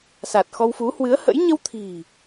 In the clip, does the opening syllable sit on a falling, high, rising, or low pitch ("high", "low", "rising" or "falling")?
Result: low